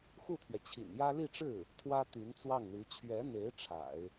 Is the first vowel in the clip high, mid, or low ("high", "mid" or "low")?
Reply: high